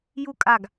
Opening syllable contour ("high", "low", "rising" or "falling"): high